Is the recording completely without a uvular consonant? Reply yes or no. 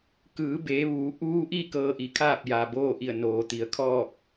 yes